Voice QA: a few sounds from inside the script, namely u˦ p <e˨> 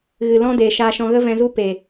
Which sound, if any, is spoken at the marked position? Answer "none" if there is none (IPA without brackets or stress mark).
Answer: e˨